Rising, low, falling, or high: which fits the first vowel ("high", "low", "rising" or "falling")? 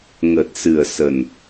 low